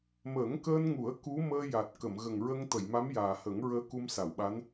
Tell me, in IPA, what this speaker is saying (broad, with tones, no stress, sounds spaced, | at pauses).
m əː˨˩˦ ŋ k əː˧ n ŋ u˨˩˦ ə̯ k u˧˥ m əː˧ j a˨˩ t̚ k ə˨˩˨ m ɣ ə˨˩ ŋ ɹ ə˧ ŋ t̪ ə˨˩˨ j m a˧˥ m j aː˨˩ h ə˨˩˦ ŋ ɹ əː˧ k u˧ m s a˨˩˨ w ɓ a˧˥ n